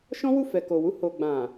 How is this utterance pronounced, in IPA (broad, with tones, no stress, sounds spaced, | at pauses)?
ʃ ɔ̃˦ w u˦˨ f ɛ˨ k o˨ w u˧ h o˨ ɡ͡b ã˨